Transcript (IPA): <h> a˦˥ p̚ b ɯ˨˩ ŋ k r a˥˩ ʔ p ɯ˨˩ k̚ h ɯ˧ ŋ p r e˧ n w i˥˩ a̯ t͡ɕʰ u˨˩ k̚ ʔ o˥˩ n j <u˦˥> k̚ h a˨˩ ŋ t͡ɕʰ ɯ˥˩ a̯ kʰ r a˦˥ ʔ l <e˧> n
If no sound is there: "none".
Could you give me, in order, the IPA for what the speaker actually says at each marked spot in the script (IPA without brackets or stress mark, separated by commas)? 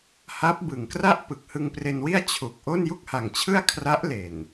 h, u˥˩, e˨˩